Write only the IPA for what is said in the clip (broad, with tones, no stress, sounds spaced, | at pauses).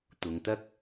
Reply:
t̪ ʊ˨˧ ŋ t̪ ɐ˥ k̚